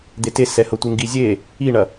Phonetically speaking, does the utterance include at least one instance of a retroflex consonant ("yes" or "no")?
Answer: yes